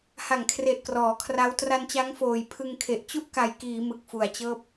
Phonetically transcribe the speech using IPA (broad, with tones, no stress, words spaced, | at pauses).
ha˨˩ŋkʰre˨˩ʔ krɔː˩˦kʰra˦˥w tra˧nt͡ɕa˦˥ŋ foː˨˩jpʰɯ˧ŋkʰe˨˩ʔ t͡ɕu˥˩ʔka˨˩jkiː˩˦ mɯ˨˩k̚fu˨˩a̯t͡ɕɤː˥˩p̚